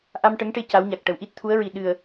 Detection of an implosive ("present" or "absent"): present